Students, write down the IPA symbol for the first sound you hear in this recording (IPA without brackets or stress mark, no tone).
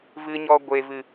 v